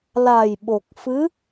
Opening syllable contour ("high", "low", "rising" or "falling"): low